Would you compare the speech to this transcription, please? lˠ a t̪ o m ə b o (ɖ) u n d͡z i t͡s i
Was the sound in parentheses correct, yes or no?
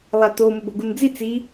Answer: no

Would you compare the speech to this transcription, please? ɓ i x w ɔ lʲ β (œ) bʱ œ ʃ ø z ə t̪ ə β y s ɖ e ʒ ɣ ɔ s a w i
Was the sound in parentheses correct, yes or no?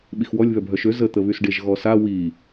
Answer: yes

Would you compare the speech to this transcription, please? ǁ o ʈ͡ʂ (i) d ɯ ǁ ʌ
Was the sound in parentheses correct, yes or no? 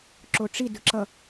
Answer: yes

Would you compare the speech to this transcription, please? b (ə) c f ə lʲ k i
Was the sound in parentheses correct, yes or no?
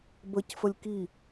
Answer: yes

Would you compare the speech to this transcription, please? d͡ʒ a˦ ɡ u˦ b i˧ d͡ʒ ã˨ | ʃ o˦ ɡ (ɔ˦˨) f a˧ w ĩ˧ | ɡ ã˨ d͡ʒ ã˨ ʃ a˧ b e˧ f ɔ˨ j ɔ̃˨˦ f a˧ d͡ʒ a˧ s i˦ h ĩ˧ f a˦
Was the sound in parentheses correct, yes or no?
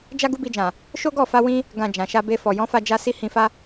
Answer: yes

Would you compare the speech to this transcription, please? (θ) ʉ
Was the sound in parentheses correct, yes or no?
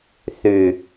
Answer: yes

